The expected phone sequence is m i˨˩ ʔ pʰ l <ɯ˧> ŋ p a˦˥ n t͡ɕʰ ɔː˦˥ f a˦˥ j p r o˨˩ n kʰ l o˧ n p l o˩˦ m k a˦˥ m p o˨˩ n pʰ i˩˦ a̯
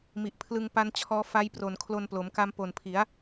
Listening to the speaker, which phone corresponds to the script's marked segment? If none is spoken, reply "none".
ɯ˧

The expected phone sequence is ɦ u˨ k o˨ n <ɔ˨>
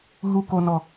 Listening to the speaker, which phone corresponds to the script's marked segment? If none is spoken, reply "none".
ɔ˨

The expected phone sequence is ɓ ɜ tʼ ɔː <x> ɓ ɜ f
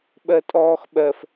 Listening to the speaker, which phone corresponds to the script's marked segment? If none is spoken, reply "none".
x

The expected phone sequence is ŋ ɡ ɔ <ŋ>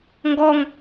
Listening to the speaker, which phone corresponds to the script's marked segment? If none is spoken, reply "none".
ŋ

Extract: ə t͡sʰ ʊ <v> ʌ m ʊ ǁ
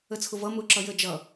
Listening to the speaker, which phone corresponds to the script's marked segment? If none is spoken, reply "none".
v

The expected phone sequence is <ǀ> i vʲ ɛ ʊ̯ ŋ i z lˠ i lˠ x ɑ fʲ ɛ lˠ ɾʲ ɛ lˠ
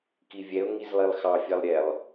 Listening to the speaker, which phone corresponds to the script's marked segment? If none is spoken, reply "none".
k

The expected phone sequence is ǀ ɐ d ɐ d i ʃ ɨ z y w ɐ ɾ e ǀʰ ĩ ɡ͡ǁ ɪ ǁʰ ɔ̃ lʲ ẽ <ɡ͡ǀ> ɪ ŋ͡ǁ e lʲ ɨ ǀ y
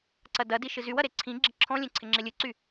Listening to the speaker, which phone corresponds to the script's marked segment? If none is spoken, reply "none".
ǀʰ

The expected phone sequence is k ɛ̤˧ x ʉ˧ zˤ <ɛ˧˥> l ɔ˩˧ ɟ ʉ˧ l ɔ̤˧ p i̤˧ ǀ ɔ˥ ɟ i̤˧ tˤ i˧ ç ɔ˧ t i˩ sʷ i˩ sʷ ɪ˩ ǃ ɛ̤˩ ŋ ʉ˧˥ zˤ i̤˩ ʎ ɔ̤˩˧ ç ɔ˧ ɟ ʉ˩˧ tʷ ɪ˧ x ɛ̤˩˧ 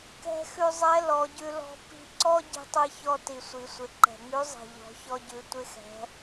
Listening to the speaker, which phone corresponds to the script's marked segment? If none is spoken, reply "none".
ɛ˧˥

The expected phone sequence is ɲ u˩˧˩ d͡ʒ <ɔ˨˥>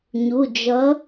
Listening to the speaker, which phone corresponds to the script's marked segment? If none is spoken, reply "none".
ʌ˨˥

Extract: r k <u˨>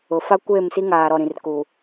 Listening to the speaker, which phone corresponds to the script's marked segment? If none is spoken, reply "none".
u˨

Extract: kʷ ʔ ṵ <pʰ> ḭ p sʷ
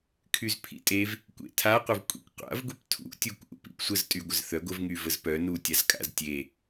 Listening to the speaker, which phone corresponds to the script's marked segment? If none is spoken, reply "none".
p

